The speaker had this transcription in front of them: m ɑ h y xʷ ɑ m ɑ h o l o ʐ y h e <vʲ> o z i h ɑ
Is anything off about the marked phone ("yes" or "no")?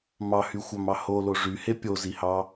yes